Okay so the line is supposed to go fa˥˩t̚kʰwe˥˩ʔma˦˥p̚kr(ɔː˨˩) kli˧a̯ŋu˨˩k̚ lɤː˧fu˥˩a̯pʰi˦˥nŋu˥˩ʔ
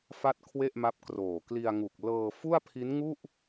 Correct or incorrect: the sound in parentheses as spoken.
incorrect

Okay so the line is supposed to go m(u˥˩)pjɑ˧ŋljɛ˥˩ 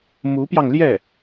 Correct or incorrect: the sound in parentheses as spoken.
incorrect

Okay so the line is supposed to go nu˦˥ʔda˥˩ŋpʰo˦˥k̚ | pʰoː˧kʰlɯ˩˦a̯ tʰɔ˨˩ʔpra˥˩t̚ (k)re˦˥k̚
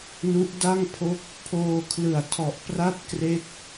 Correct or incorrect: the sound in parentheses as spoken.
correct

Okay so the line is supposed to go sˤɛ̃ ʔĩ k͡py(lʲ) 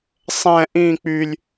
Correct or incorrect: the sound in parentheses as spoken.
correct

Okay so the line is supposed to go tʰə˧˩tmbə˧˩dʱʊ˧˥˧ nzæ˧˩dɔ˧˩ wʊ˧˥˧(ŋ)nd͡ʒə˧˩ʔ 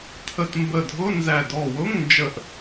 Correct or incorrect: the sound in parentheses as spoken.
correct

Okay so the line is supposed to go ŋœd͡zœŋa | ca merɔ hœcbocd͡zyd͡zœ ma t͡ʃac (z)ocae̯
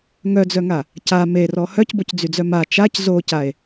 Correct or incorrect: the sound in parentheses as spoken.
correct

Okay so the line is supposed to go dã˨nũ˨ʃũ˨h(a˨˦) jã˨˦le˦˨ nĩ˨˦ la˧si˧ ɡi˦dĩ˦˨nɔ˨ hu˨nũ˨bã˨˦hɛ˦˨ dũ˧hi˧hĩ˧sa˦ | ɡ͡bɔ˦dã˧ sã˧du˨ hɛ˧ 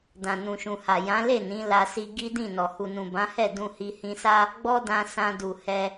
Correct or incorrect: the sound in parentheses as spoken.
incorrect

